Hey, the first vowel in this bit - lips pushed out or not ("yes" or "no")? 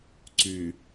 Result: yes